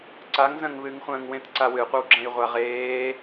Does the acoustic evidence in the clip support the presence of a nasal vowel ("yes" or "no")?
yes